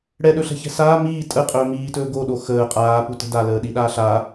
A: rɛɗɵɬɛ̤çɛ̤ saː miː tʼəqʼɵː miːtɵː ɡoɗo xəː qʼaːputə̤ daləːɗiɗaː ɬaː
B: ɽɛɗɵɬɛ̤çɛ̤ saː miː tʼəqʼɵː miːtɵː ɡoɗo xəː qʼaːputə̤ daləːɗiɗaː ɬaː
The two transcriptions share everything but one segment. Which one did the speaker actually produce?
B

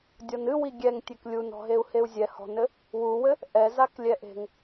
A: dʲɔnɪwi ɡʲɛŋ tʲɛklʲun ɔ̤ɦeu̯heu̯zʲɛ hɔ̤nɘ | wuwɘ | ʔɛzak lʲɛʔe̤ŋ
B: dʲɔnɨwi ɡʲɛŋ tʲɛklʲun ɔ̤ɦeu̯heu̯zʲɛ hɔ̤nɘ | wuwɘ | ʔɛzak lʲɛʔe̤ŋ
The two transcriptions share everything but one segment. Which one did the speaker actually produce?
B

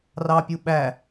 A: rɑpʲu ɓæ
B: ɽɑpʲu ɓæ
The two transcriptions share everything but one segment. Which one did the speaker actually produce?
A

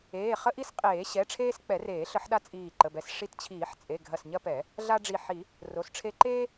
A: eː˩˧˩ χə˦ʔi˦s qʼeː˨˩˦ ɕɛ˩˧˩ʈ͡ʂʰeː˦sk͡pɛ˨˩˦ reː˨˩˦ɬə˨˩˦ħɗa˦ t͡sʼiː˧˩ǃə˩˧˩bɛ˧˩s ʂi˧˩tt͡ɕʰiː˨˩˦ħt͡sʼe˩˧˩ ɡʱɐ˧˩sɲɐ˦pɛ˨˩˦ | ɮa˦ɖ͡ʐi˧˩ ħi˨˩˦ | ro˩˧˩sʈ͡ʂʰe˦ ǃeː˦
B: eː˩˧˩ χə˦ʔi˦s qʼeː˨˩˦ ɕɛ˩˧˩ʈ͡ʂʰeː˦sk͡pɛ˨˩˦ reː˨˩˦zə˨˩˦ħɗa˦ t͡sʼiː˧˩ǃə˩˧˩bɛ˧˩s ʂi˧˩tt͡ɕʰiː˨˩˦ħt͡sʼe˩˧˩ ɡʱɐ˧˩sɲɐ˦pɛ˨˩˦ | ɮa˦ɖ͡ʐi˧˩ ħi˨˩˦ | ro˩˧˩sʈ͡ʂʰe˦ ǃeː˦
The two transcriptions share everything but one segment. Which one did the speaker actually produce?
A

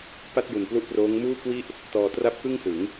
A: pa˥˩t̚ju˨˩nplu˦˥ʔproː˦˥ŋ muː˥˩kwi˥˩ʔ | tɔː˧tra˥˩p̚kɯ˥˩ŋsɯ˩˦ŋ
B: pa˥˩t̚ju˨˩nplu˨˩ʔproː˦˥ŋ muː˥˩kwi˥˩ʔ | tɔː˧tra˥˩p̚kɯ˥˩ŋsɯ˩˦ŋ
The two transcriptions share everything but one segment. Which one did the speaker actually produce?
A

